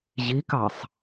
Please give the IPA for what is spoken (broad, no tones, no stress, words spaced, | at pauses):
ʑikɑsˤ